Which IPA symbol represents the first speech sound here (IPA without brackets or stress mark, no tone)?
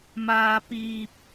m